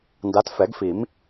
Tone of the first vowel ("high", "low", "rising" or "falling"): rising